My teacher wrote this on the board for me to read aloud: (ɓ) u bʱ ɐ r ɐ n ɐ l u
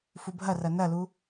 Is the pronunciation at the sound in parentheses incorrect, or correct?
incorrect